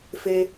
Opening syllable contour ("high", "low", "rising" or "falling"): high